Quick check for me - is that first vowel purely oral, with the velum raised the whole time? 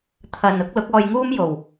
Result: yes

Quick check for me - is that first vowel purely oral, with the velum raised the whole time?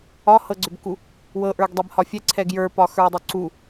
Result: yes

